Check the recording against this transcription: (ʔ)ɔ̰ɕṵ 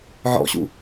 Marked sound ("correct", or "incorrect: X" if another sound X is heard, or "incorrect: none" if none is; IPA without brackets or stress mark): incorrect: ʕ